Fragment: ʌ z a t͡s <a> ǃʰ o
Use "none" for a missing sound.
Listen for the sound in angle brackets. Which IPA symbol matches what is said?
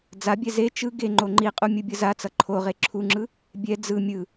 ʌ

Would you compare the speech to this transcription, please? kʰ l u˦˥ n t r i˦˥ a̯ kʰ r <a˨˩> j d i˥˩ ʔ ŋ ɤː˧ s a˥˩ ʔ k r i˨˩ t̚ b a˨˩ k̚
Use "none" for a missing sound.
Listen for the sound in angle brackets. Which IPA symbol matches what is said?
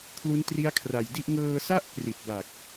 a˨˩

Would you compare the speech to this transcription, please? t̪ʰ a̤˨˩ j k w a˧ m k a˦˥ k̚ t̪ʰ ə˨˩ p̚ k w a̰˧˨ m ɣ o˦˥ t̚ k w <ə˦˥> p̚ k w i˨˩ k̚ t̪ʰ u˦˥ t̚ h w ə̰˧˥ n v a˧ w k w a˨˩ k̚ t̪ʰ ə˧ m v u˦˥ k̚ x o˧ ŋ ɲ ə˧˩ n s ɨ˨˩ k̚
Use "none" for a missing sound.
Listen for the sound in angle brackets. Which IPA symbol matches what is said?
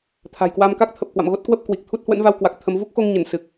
ə˦˥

